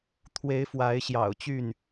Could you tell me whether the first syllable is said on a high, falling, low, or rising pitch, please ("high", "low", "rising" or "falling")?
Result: rising